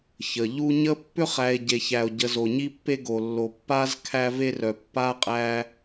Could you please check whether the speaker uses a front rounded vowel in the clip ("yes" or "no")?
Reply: yes